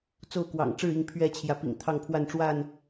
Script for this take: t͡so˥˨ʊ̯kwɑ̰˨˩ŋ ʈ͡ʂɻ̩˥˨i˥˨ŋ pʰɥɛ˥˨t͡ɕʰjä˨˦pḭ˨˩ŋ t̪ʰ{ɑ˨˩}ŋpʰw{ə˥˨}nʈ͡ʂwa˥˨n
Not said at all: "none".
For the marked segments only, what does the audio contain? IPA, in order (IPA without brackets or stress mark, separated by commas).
ɑ˥˨, a˥˨